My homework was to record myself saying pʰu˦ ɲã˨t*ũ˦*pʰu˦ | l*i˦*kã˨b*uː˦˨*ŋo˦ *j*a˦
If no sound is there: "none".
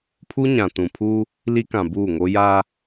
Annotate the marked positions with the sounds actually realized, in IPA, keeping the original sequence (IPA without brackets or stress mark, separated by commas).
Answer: ũ˨, i˦, uː˦˨, j